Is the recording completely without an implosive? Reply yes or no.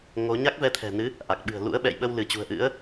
no